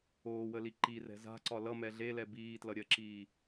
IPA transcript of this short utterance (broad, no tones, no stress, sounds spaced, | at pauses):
oː w ə l i ǃ i r ɛ̤ z a̤ ǀ ɒ l ʌ m ɛ ɮ e l ɛ b iː t l ʌ ɾʲ ɜ ǁ iː